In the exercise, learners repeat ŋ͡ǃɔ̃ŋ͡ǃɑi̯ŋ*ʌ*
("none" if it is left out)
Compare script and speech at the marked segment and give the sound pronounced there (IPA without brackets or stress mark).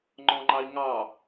ɑ